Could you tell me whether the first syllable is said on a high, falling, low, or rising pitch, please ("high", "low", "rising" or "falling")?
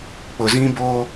low